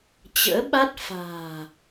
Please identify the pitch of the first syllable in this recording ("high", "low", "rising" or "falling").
rising